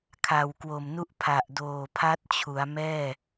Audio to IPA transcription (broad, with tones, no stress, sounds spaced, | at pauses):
kʰ a˨˩ w k w o˨˩ m n u˥˩ ʔ pʰ a˨˩ ʔ d oː˨˩ pʰ a˦˥ t̚ t͡ɕʰ u˩˦ a̯ m ɛː˥˩